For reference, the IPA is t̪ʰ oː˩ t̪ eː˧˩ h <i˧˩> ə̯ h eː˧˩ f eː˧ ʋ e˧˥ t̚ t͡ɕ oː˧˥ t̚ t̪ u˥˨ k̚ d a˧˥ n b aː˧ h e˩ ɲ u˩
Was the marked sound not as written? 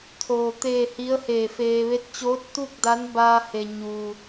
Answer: yes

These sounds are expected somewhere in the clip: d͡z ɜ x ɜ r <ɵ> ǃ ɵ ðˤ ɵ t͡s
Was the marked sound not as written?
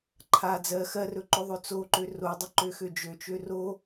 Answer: no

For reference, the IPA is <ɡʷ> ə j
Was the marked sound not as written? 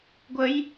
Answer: no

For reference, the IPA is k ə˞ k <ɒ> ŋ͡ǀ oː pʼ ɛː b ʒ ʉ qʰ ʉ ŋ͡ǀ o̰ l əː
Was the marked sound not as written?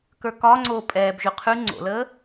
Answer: no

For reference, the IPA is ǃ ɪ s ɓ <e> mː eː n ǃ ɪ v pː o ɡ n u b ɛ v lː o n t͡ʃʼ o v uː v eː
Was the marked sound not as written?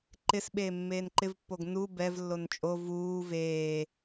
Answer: yes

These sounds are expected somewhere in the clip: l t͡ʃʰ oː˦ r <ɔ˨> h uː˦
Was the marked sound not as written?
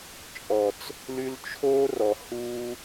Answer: no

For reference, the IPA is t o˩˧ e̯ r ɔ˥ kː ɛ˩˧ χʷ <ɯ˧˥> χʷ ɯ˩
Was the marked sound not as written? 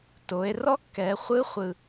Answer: no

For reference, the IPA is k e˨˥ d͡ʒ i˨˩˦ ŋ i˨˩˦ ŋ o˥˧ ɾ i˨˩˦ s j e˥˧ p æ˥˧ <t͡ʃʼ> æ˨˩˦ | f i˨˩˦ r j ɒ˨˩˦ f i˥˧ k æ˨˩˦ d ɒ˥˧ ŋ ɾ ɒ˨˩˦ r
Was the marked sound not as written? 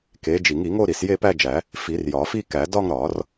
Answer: yes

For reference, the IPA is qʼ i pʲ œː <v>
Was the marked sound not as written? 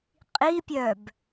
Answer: yes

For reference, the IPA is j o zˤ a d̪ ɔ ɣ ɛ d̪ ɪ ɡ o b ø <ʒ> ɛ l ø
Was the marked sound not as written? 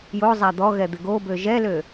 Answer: no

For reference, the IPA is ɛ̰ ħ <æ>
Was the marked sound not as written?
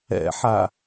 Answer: yes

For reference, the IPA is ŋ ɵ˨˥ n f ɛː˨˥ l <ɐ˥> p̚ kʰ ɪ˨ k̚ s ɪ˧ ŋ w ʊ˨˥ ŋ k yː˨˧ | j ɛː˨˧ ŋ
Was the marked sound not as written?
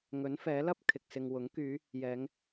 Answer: no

